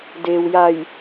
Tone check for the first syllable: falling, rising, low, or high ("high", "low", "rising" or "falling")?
low